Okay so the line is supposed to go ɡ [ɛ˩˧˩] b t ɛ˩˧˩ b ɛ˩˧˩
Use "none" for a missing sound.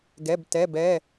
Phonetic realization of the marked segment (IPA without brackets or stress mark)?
ɛ˩˧˩